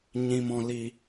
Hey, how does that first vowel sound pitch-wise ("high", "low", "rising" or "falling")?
low